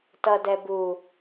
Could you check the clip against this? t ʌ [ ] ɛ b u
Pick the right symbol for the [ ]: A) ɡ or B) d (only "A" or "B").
B